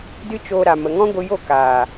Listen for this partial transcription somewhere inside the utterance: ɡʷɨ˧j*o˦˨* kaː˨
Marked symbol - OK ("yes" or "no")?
yes